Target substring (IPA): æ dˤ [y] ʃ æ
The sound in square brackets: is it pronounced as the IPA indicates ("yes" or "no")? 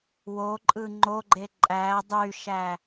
yes